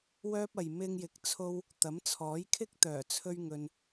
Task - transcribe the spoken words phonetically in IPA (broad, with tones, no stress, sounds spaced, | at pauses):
w œː˥ p̚ ɐ˨ j m ɪ˧ ŋ j ɪ˨˥ k̚ t͡sʰ o˥ w | t̪ ɐ˨˥ m t͡sʰ ɔː˨˥ j kʰ ɪ˥ k̚ t̪ œː˨˩ t͡sʰ ɵ˥ ɥ ŋ ɵ˧ n